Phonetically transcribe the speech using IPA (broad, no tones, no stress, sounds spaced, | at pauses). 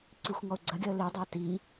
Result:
ǀ i xʷ ŋ ɔ ʊ̯ ɡ͡ǀ ɐ ɡʲ ɒ ə̯ l i dˤ a t i